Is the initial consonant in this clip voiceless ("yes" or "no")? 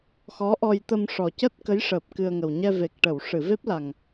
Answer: yes